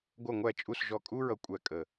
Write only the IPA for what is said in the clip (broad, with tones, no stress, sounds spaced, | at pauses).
ɡʷ ʌ˨˩ ŋʷ æ˨˩ t͡ʃʼ u˨˩ s ʒ ɔ˨˩ kʼ u˧ ɹ ʌ˨˩ kʷʼ æ˨˩ kʼ ə˨˩